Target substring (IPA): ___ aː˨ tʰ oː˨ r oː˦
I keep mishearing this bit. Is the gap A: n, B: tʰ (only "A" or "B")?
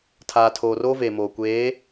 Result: B